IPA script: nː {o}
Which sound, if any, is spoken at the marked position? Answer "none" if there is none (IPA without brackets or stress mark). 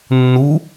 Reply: u